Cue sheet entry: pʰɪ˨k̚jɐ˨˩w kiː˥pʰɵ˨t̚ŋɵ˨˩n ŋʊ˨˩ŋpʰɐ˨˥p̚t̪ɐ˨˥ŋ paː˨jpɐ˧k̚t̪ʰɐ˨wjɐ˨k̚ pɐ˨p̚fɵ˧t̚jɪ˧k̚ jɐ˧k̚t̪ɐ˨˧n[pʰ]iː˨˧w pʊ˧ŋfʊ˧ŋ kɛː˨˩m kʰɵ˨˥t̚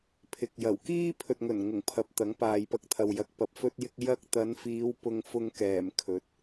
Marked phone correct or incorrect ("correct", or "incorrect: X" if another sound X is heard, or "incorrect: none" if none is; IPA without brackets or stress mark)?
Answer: incorrect: f